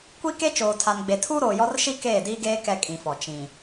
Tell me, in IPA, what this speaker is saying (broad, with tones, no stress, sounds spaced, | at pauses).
kʷ i˦ k e˦ t͡ʃ oː˨ tʰ a˨ n ɡ͡b e˨ tʰ uː˦ ɾ oː˨ j ɔ˦ r ʃ i˦ k eː˦˨ d iː˦ ɡ eː˦ k ɛ˦ kʼ ĩ˨ f ɔ˨ t͡ʃ ĩ˨